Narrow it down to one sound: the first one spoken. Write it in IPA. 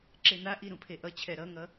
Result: ǁ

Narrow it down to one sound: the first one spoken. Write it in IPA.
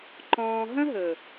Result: ǃ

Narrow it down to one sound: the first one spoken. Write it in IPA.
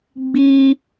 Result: ɡ͡b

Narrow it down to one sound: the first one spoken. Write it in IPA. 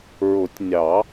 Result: ɹ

